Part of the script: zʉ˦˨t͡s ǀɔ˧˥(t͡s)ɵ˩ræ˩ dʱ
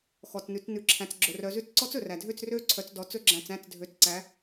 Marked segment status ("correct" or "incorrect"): correct